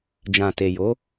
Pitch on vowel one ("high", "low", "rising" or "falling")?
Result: low